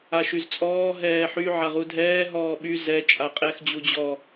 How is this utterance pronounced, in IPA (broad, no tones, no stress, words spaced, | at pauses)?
aʃyzt͡sʼɔː ɦɛːħy ʕaʁudʱɛː ɦɔːɓy zɛ t͡ʃʼaqʼɛx d͡ʑud͡ʑɔ